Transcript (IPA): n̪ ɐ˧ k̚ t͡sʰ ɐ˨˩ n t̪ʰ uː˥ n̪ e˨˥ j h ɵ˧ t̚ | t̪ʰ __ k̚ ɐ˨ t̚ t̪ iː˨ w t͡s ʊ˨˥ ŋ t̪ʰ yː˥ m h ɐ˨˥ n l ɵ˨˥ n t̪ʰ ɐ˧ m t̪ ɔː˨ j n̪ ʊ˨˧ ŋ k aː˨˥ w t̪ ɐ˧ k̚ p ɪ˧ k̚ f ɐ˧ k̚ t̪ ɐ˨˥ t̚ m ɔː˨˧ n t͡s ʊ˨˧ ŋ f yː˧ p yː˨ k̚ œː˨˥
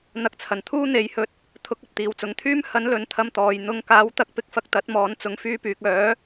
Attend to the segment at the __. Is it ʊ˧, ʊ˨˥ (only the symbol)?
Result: ʊ˨˥